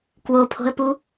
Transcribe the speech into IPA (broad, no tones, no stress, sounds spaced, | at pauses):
k w o pʰ o̤ ə̯ p u